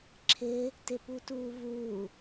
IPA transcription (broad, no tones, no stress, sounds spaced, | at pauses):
ǁʰ ɪː | t ɪ p u t uː v uː